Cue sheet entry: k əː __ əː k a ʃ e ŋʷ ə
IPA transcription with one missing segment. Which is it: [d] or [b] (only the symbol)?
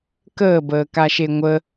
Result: b